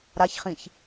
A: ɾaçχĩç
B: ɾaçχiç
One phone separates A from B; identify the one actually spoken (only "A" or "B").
A